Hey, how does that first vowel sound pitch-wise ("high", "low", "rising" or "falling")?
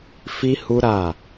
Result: high